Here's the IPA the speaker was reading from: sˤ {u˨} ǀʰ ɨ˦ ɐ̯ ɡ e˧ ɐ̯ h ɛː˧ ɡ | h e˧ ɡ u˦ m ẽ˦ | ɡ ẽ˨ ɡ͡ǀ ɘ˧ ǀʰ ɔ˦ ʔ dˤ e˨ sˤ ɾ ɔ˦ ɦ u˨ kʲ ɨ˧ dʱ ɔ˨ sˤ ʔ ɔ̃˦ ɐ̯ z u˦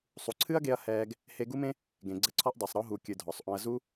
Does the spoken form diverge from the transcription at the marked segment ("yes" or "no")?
no